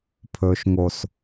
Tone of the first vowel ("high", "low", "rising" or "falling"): low